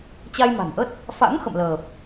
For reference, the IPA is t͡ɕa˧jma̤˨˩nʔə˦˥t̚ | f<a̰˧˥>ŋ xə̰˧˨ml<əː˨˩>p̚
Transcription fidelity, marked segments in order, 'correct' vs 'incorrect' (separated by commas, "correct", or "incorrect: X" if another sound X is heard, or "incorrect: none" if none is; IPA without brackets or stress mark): correct, correct